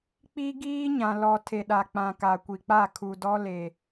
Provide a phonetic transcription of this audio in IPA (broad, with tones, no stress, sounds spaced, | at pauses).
k͡p i˦ ɡ iː˦ ɲ ã˨ l ɔ˨ tʰ e˨ ɗ a˨ k͡p ã˨ k a˨ kʷ i˨ k͡p a˦˨ kʰ u˨ d ɔ˦ l e˨